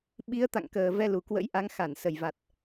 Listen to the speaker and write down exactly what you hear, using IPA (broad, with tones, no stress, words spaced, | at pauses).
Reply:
ɓi˨˦ə̯t̪a̰˧˨ŋkəː˨˩ vɛ˧lu˨˩kwə̰˧˥jʔa˨˦ŋ xa˧˩nsə˨˩jva˨˩t̚